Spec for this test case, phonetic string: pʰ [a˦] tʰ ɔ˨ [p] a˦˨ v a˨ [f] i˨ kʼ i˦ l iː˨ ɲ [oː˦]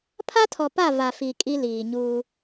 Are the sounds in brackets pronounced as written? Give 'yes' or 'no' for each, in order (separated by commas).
yes, yes, yes, no